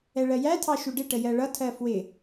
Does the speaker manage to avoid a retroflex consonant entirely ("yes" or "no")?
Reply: no